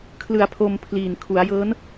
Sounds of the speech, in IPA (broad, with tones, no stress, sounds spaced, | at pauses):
kʰ l ɯ˩˦ a̯ pʰ o˧ m pʰ l iː˨˩ n kʰ u˩˦ a̯ j ɤː˦˥ n